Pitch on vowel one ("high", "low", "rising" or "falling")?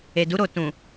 low